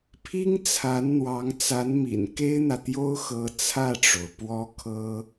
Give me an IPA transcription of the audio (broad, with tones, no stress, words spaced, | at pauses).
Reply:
pʰi˥ŋt͡sʰa˧˥nn̪wɑ˧˥ŋ t͡sa˧˥nmḭ˨˩n ke˥ɪ̯n̪ä˨ t̪jo˥ʊ̯xɤ˧˥ t͡sʰä˥˩ʈ͡ʂo˩ʊ̯ pwɔ˥kʰɤ˥